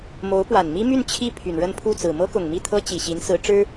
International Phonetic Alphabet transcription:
mo˧˥ʊ̯pwa˨˩nmi˥my˥˧n t͡ɕʰi˥˩ pʰy˨˩nɻə˥˧npʰu˥˩t͡sɹ̩˨˩ mɤ˥kʊ˨˩ŋmi˥˩t̪ʰɤ˥ t͡ɕi˨˩ɕi˧˥nsɹ̩˧˥ ʈ͡ʂɻ̩˥

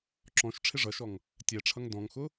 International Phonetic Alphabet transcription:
ǁɔ̃ʃ ʈ͡ʂʰɪʐʌʃɔŋ | tʲɛʈ͡ʂʰʌŋ dɔ̃ŋxʊ

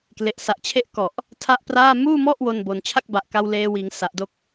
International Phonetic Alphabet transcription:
kle˨˩ʔsa˨˩ʔt͡ɕʰe˥˩ʔ kɔ˨˩ʔ | tʰa˥˩ʔpraː˥˩ muː˥˩mɔ˥˩ʔ wo˧nbo˨˩n t͡ɕʰa˥˩k̚ba˨˩ʔka˧w leː˧wiː˩˦ŋ sa˨˩ʔdo˦˥k̚

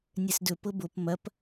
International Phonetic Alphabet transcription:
nʲɛsdɵ pɤbop mɐp

